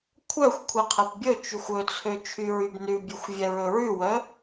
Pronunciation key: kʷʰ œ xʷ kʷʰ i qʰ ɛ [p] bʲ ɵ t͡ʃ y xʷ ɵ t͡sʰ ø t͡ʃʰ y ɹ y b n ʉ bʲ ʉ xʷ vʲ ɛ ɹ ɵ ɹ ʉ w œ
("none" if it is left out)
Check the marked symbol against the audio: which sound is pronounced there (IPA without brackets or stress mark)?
p